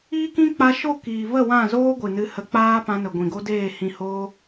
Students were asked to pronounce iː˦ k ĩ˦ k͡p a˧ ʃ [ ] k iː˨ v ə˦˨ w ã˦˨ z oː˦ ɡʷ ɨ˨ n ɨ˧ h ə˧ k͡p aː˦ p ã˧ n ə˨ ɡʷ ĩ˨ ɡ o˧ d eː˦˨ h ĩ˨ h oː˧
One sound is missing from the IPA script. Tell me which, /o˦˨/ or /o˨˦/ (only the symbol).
o˦˨